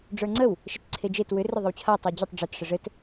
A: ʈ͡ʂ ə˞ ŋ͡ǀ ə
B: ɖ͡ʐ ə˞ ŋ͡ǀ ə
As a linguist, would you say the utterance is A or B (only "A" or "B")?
B